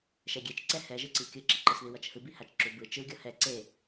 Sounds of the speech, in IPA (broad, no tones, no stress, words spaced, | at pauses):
ʃɛɡʲet͡ʃǀɛ hɛʒɯǀi kʲɯǁiǃɯsði wʌt͡ʃhɯbihat͡ʃ ǁubɯ t͡ʃɯɡʲʌ hɛ ǀe